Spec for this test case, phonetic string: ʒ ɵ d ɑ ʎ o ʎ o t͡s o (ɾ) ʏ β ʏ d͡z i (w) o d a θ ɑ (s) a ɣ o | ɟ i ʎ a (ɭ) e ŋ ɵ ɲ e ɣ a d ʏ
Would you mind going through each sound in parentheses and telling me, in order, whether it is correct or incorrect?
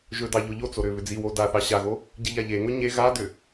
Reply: correct, correct, incorrect: ɕ, incorrect: ʎ

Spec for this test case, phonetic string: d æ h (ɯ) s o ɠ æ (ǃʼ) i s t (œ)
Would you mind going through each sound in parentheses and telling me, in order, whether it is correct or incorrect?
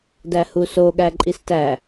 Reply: incorrect: u, correct, incorrect: æ

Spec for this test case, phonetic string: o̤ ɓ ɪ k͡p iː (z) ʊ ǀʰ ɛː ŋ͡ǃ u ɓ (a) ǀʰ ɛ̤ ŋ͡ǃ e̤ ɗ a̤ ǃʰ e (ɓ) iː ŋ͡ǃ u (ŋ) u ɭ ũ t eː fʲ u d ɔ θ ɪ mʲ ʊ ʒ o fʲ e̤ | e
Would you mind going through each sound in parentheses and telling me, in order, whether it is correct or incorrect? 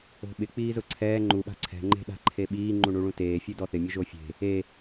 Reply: correct, incorrect: a̤, correct, incorrect: ɳ

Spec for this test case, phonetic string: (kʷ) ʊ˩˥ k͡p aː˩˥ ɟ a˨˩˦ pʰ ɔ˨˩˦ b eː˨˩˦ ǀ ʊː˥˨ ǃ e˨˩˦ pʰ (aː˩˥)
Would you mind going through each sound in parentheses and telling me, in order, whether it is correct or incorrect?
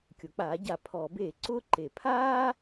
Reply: incorrect: kʲ, incorrect: aː˦

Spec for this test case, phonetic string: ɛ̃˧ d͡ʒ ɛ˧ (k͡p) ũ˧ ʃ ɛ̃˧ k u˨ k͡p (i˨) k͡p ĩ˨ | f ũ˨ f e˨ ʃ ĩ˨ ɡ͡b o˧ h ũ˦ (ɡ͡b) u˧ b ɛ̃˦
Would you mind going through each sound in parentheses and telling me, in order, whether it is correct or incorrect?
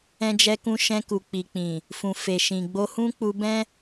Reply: incorrect: k, correct, incorrect: k͡p

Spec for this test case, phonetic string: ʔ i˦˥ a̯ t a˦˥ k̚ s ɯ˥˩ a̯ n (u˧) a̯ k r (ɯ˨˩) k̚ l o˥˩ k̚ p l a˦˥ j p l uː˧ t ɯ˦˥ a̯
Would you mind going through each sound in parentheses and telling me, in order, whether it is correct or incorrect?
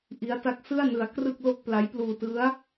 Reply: incorrect: ɯ˧, incorrect: ɯ˥˩

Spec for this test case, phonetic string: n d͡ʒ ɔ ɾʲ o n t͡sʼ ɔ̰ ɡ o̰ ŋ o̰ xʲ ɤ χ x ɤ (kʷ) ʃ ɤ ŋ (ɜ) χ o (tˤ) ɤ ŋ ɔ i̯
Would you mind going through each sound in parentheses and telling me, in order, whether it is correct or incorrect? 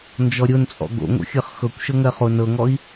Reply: correct, correct, incorrect: n

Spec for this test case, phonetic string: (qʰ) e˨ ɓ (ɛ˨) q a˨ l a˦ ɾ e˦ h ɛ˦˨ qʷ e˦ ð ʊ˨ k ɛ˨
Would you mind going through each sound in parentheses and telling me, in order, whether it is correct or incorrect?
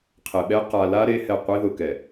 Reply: correct, incorrect: ɛ˦

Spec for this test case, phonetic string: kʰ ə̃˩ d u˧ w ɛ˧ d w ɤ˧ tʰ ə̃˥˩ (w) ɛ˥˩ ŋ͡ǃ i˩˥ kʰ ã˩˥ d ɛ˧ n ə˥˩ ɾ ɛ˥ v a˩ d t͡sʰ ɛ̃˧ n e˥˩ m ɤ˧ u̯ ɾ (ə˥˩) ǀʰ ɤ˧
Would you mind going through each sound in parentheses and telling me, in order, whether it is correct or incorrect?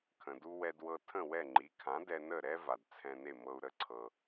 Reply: correct, correct

